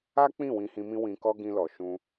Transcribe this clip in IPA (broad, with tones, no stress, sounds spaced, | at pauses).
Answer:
a˦ k͡p ĩ˦˨ w ĩ˧ h ĩ˧ m ĩ˦ w ĩ˧ k ɔ˦ ɡ ĩ˧ l ɔ˨ ʃ ũ˧